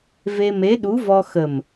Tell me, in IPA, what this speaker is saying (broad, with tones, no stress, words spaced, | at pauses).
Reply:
ve˧me˧˥ɗu˧˥vɔ˧ xə˨˩m